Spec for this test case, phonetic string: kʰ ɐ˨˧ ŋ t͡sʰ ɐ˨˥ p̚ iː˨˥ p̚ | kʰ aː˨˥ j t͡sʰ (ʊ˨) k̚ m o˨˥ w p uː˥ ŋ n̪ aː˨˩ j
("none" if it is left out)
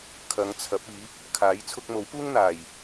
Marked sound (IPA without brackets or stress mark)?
ʊ˧